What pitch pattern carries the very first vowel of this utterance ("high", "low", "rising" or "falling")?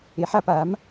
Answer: rising